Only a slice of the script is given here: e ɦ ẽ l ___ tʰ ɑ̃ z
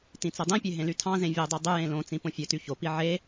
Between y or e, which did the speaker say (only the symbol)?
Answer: y